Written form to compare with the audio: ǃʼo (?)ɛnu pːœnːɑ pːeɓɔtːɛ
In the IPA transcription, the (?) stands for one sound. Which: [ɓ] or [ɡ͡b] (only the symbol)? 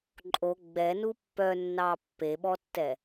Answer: ɡ͡b